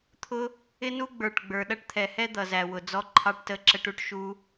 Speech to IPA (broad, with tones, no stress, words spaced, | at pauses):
t̪ʰʊ˦ | ɪ˦nu˦ ɡ͡bə˞˨ʈ ɡ͡bə˞˨ɗʌ˦ʈt̪ʰɛ˨hɛ˦ d̪ʌ˨zæ˨wʊ˨ d͡zɔ˧ǃʰɑ˧ʈtə˧ ǁə˧ʈu˧ʈ ʃu˦